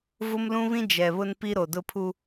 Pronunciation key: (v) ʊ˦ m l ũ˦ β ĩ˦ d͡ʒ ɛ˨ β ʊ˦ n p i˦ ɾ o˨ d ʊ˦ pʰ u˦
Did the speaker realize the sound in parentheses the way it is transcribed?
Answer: yes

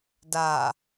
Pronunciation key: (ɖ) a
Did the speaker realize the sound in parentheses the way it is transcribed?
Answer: no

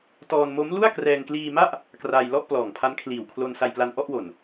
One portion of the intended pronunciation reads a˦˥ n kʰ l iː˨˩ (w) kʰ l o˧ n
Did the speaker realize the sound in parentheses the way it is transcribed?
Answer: yes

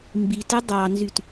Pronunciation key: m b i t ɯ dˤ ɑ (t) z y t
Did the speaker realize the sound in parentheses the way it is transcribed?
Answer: no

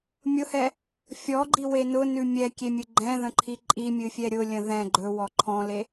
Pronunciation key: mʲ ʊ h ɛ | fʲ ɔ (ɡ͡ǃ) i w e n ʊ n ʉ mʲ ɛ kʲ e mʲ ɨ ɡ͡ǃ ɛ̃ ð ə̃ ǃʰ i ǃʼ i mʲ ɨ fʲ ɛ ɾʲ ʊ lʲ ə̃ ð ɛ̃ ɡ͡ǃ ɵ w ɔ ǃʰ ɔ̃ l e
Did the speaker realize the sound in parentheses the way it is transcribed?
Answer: yes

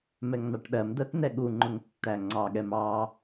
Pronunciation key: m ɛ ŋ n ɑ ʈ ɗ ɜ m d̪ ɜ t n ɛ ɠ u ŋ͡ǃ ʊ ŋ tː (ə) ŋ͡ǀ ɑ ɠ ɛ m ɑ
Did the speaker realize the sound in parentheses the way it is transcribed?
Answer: no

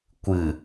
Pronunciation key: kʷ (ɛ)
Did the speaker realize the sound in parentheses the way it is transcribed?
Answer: no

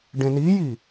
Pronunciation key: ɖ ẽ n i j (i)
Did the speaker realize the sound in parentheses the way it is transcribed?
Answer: yes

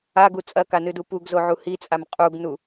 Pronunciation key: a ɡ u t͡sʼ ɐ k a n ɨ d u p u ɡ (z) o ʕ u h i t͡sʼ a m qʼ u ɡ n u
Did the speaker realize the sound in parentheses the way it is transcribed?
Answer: yes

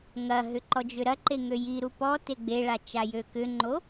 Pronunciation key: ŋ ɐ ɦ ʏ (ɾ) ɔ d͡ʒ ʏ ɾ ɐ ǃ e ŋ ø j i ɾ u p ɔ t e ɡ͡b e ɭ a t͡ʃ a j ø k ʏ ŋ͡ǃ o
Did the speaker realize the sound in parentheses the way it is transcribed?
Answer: no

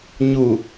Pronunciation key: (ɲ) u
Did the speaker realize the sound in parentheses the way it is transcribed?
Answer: yes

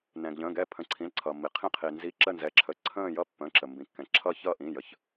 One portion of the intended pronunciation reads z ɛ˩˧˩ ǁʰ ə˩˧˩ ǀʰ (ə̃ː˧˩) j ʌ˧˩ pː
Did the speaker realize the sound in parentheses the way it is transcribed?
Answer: yes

